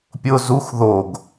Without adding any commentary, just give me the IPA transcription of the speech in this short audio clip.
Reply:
pʲʊ zux ðoɡ

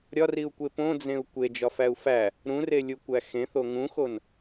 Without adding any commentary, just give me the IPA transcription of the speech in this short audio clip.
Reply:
ɾʲɒriu̯kʷe põd͡zẽu̯ kʷed͡ʒɒfæu̯ fæ | ɾũrelʲukʷæ xẽθo ŋũxon

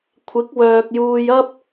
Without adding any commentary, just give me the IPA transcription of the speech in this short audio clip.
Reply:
kʷʰɪ˨˥k̚wœː˨k̚juː˧j ɐ˥p̚

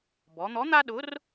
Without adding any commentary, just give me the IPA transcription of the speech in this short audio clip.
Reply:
bɔ˩˧n̪ɔ˨˥n̪a˦ɗʊ˨˥r

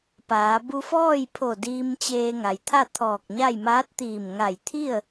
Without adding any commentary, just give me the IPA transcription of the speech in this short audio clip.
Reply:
paː˩˧ bu˧fɔː˥˨jpʰo˧˩ diː˧mt͡ɕeː˧ŋa˩j t̪ʰa˥˨t̪ʰɔː˧˩k̚ɲa˥˨j maː˧˥t̚t̪iː˧˩m ŋa˧˩jt̪ʰi˥˨ə̯

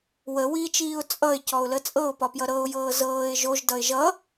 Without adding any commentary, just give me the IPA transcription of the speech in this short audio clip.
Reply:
wəwiːt͡ʃiːʊ̯ t͡sʼʌɪ̯cɔʊ̯lə t͡sʼɤʊ̯pɒpjʌ ɾɤʊ̯jɤː zɤːɪ̯ ʒoʒdʌɪ̯ ʒʌ

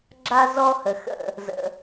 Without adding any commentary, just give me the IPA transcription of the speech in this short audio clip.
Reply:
ɡ͡ǁa˦ zɔ˦hə˨xə̰˦˨ | zə̰˧

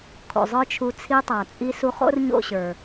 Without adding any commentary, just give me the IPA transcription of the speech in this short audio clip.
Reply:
kʰo̰˨zˤə˞˦t͡ʃʰu˧ t͡sʰi˧tˤa˨t͡sʼi˧ su˧χo̰˦rɲo̰˦˨ɕə˞˨

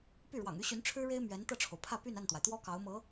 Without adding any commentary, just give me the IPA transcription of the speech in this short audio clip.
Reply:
py˥˩ɻwɑ̰˨˩ŋy˥ɕy˧˥n ʈ͡ʂʰɻ̩˥ɻe˥ɪ̯ mɥɛ˧˥nt̪ɤ˥˩ʈ͡ʂʰo˩ʊ̯ pʰä˥˧py˥˧na˥˩nt̪wa˩ɪ̯ t̪wɔ˥ kɑ˧˥ʊ̯mɤ˧˥

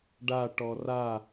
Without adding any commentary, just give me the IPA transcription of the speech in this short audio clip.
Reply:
ɖa ʈɔra

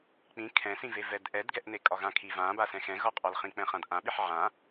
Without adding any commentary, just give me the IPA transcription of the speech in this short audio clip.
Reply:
k͡pĩ kʰɛ̃sĩvevɛd ʔɛdɡɛʔne kʼɒɣãkʰi vãbasɛ̃ xɛ̃ɣɒqʼɒlχĩ k͡pɛ̃χãdʔãɓiħ ʕã

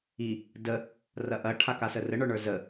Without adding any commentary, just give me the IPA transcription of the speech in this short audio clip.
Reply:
i | də | rɐʔɐ ʈʰakasərə ɳə˞ɳə˞zə

